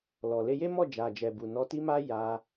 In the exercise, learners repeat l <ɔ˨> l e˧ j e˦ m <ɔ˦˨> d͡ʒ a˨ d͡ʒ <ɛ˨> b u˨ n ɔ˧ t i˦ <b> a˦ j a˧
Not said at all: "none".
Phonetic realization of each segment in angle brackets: ɔ˨, ɔ˦˨, ɛ˨, m

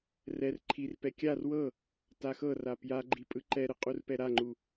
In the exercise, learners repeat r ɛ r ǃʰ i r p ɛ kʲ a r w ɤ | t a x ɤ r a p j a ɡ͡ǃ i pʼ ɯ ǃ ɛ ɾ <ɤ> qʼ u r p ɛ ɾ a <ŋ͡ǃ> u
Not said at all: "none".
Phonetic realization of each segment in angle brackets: ɯ, ŋ͡ǃ

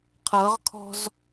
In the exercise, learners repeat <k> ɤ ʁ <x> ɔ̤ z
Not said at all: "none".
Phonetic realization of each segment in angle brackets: qʰ, kʰ

